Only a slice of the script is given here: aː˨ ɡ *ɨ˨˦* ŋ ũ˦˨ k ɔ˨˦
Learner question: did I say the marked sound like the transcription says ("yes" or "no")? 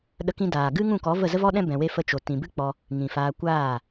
no